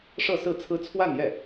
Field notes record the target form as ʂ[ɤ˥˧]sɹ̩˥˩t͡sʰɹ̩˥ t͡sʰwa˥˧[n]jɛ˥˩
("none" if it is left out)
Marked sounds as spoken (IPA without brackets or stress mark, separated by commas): ɤ˥˧, n